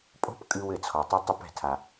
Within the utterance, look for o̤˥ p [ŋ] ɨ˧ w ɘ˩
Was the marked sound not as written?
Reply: yes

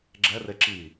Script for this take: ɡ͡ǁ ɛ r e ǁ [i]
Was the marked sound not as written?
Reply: no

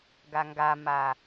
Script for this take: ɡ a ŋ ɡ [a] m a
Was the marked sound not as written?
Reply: no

